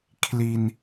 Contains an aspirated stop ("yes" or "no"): yes